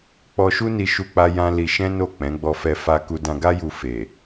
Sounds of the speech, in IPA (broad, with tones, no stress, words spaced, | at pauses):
k͡pɔ˧ʃu˦ni˧ ʃu˦k͡pa˦ jã˦ li˧ ʃɛ̃˦no˦˨ k͡pɛ̃˨˦ɡ͡bɔ˧fɛ˧ fa˧ku˧ dã˧ɡa˦ju˧ fe˨